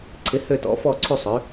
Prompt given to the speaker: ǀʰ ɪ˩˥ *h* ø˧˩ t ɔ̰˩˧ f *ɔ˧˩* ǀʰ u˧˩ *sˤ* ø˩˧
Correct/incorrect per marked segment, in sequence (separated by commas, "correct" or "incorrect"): correct, correct, correct